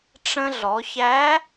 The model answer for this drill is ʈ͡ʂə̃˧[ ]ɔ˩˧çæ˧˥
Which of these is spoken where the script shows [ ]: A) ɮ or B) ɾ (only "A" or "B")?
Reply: A